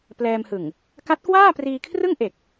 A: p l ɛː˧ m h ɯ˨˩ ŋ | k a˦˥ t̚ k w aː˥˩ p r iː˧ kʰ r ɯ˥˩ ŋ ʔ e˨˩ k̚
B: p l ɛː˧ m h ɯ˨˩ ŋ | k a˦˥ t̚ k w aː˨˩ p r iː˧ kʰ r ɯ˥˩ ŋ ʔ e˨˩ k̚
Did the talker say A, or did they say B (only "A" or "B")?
A